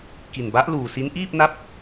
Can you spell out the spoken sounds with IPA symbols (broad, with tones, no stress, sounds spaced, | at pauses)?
k i˨˩ n b a˦˥ ʔ l uː˨˩ s i˦˥ n ʔ iː˥˩ p̚ n a˦˥ p̚